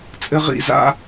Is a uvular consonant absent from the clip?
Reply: no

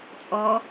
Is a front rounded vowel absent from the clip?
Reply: yes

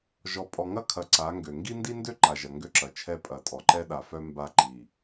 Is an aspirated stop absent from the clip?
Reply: no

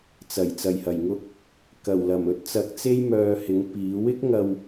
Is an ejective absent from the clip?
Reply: yes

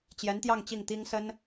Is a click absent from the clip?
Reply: yes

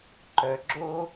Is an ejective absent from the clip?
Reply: yes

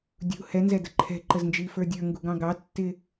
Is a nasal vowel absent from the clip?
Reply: no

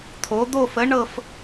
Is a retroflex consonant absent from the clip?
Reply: no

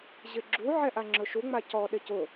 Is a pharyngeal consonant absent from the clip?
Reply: no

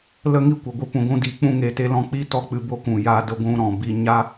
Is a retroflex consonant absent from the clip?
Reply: yes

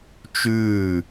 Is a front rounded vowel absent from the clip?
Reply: yes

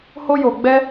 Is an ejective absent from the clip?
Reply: yes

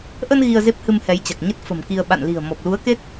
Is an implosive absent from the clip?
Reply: no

